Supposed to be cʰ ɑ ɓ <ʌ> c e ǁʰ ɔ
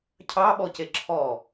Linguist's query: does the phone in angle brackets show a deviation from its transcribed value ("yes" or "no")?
yes